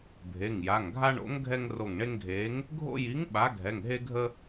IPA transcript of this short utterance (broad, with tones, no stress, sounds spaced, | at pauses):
bʱ e˩˧˩ ŋ j a˩˧˩ ŋ ɡʱ a˦ ɳ o̰˨˥ ŋ ɡʱ ɛ˦ ŋ r o˧˩ ŋ ɳ e˦ ŋ ɡʱ eː˨˥ ŋ | ɡʱ o̰˦ j i˨˥ ŋ ɓ a˨˥ ɡʱ ɛ˩˧˩ ŋ ɦ e˦ ɡʱ ə˦